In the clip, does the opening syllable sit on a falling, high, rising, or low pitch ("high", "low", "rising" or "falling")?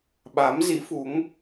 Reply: rising